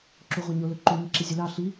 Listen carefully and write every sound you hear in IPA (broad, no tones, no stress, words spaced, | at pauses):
ǁuʁʷaɲolɵ ǃuɲi ǁizʲɵlɑ ɬi